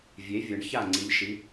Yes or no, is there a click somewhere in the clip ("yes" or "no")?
yes